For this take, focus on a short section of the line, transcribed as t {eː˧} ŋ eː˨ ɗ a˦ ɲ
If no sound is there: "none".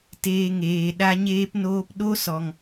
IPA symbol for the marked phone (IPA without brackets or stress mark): eː˧